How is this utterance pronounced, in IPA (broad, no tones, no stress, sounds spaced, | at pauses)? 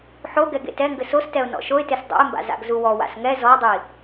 ħ o ɡ ɛ ɡ ḛ t ɛ ŋ ɡ ɘ s o s t ɛ ʊ̯ n ɔ̰ ʃ o ɪ̯ t e s dˤ ṵ ɪ̯ m b a̰ z a̰ ɡ z u w ɔ w a̰ s ŋ ɛ z ɔ dˤ i